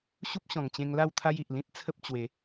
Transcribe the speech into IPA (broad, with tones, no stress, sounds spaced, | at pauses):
ɕ u˦ p̚ ɕ ɔ̃˨˩ ŋ t͡ɕ ẽ˧ ŋ l a˥˧ w t̪ʰ a˦ j i˨ ʔ l ĩ˦ t̚ t͡sʰ ə˦ p̚ t͡ɕ w e˨˦